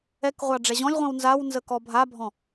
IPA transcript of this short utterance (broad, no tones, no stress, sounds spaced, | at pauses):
ɛ k ʁʷ ɑ ɖ͡ʐ ɛ ʑ ɔ̃ lʲ ʁʷ ĩ w n z a w n z ə k ɔ bʱ a bʱ ɔ̃